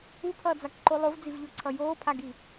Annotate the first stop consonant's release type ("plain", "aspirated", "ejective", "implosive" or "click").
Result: aspirated